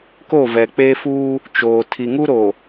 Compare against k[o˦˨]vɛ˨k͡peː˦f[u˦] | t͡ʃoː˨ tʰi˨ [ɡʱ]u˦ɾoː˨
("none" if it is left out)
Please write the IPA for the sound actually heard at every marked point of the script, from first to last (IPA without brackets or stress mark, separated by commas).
o˦˨, uː˦, ŋ